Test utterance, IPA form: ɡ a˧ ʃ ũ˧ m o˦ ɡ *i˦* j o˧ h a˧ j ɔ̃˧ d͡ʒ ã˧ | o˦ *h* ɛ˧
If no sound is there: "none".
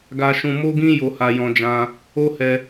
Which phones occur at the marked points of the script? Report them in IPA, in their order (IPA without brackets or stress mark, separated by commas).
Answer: ĩ˦, h